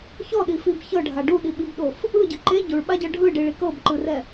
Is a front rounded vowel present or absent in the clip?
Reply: absent